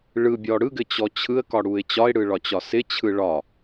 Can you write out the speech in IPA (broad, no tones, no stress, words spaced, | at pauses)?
ɭɯbʲɔ ɽɯɡɘt͡ɕɔ t͡ɕʰɯə̯kɒɽuɪ̯ t͡ɕɒɪ̯ɽɯɭɒt͡ɕɒ sɪt͡ɕʰɯ ɭɒ